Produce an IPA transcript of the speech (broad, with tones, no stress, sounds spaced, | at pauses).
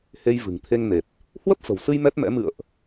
h e˧ j v ɨ̤˨˩ ŋ t̪ʰ e˧ ŋ n e˨˩ t̚ | h w ə˦˥ p̚ f ə̤˨˩ w s ɨ˧ j m ɛ˦˥ t̚ m ɛ̰˧˥ m ɨ̰˧˨ ə̯ ʔ